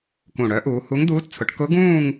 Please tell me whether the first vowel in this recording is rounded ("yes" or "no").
yes